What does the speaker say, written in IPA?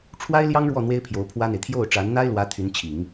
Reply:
ʈ͡ʂʰwa˥ɪ̯ljɑ˥ŋɻwɔ˥˩ n̪we˥ɪ̯pʰjo˧˥ʊ̯pʰwä˥n̪e˨ɪ̯ t̪ʰjo˥˩ʊ̯ʈ͡ʂa˧˥nn̪a˥ɪ̯lwä˧˥ t̪ʰy˧˥nt͡ɕʰi˨˩˦ŋ

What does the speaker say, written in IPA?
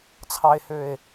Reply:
t͡sʰɑe̯høe̯

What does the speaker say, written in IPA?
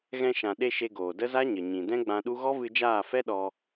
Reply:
ɣɛ̃˧ʃã˨ɗe˧ ʃe˧ɡoː˨də˦ za˦ɲə˨ɲĩ˨ dɛ̃˦ɡ͡bã˧ɗu˦ ɣɔ˦vɨ˧d͡ʒaː˦˨fɛ˦ ɗɔ˧

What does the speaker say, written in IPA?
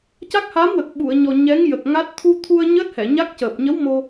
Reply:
ca˦˥k̚ha˧˥mwə˨˩k̚ ɓu˨˩˨ə̯ɲɔ˨˩ ɲɛ˧˥ŋjə˨˩k̚ŋa˦˥t̚ t̪ʰu˧t̪ʰu˧ə̯ ɲəː˦˥t̚hɛ˨˩˨ ɲa˦˥k̚cəː˨˩p̚ ɲə˧˥w mo˧

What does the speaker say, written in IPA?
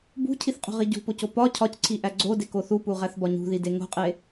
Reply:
bṳcʰiθqʼo̤ʁi ɟṳpoco pɒ cʰɒcǀʰiʔæ ɡ͡ǀodeko θupuʁæθbɒ ɲṳðide ŋo̤qʼe

